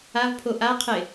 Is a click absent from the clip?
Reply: yes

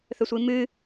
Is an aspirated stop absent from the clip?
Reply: yes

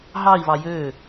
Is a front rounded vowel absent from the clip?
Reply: no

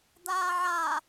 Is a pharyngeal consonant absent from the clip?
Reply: no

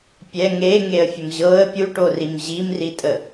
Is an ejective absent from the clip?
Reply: no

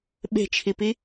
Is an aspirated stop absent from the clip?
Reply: no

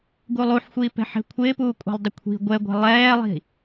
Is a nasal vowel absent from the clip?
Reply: yes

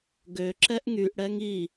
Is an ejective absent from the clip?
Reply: yes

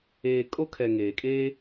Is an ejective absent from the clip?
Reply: no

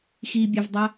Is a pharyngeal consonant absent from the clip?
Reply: yes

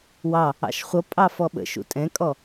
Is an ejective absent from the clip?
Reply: no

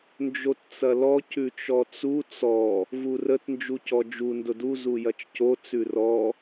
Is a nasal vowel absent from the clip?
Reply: yes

